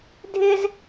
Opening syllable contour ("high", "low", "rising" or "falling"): high